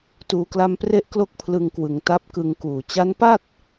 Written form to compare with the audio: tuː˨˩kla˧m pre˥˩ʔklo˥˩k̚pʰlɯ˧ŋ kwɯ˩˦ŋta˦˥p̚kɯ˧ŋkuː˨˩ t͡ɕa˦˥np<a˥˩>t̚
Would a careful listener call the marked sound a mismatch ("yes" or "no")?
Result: no